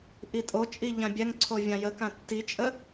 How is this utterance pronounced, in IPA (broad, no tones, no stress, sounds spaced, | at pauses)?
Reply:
ʔ i tʼ o t͡ʃʼ i ʎ ã bʲ ɛ ŋ ǀʰ o vʲ ã j ə k ã tː i t͡ʃʼ ə